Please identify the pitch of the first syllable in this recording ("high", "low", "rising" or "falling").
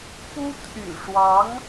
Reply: high